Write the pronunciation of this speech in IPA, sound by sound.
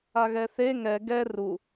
a ɣ ɛ θ e ŋ ɛ ɡ ɛ r u

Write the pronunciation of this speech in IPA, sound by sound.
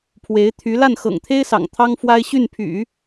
pʰ w e˧˥ ɪ̯ t̪ʰ y˧˥ l a˥˩ n x ɤ̰˨˩ ŋ t̪ʰ e˥ ɪ̯ s ɑ̰˨˩ ŋ t̪ʰ ɑ˥ ŋ f w a˥ ɪ̯ ɕ y˥˩ n pʰ y̰˨˩˦

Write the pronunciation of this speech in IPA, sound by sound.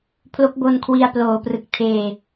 pʰ l o˦˥ k̚ b o˧ n kʰ w i˧ a̯ p l oː˨˩ p r ɯ˨˩ k̚ tʰ eː˨˩

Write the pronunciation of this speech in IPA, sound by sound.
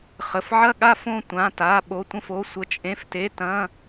χ ə˩˧˩ f ʕ ɐ˥˧ ɠ a˥˧ f õ˥˧ tʷ ã˩˧˩ t a˩˧˩ ɓ o˩˧˩ tʷ ə̃˥˧ f o˩˧˩ sʷ ə˩˧˩ t͡ʃʼ ẽ˩˧˩ f t e˩˧˩ t ɐ̃˩˧˩

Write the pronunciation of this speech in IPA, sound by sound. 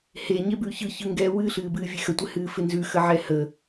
h e ɲ e b ʉː ç ɯ ç ɯ ŋ ɡ ɛ w ɨ ɬ ɨː b ɨː vʲ e x ə tʷ ɪ h ɨː f ɪ n z ʉ x ə ʕ ɛ h ə

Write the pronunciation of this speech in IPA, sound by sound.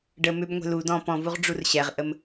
ɖ ə m ʏ b ŋʷ ɛ̤ l u d ɔ̃ p ɔ̃ v u ʁ ɖ͡ʐ u r ɕ ɛ ʁ ʔ ə m

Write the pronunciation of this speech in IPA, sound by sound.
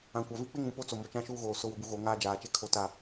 ã˨ kʷ a˨ v i˦ k͡p ɪ˦ ŋ ũ˨ p o˦ t͡s o˨ m o˨ t͡ʃ ã˦ ʃ uː˦ ɣ oː˨ s ʊ˨ w ʊ˨ b u˨ ɣ o˨˦ ŋ aː˦ d͡ʒ aː˨ t͡ʃ e˦ kʰ o˦ t a˦

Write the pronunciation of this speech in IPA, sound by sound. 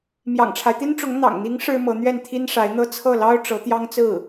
m j ɑ̰˨˩ ŋ ʈ͡ʂʰ a˦ ɪ̯ t̪ i˥ n ʈ͡ʂ ʊ˧˥ ŋ n̪ ɑ̰˨˩ ŋ n̪ i˧˥ ŋ ʂ ɻ̩˥ m ɤ˧˥ n̪ ɥ ɛ˥˩ n t̪ʰ i˥ n ʂ a˧˥ ɪ̯ n̪ ɤ˥ t͡sʰ ɤ˥˩ l ɑ˥ ʊ̯ ʈ͡ʂ ɤ˧˥ t̪ j ɑ˥ ŋ t͡s ɹ̩˥˩

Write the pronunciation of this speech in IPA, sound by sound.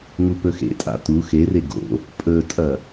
ŋ u p ɵ x ḛ tʼ a̰ t u x e r e ɡ o̰ | pʼ ɵ tʼ ɐ

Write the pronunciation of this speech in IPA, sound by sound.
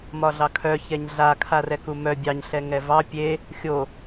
m ɒ ɮ ɑ kʰ œ ç ɛ ɲ ɮ a kʰ a r ɛ k u m œ bʲ ɑ ɲ ɬ ɛ ŋ ɛ v ɑ pʲ e | xʲ o

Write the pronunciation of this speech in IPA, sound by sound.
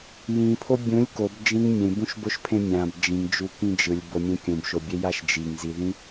j ĩ pʰ o bʲ ũ lʲ k o b d͡ʒ ĩ ŋ mʲ ẽ b ũ ʃ b o ʃ pʰ ẽ mʲ ã b d͡ʒ ĩ ŋ d͡ʒ u k ĩ d͡ʒ ɯ lʲ b o mʲ ẽ kʲ ũ b ʃ o bʲ e j a ʃ d͡ʒ i ŋ z i ð ĩ

